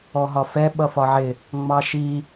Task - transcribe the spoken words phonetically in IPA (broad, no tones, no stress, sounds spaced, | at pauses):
ɔ ɦ ɒ f ɛ ɓ ʌ f ɒ ʕ ɪ | ŋ͡m ɑ ʃ i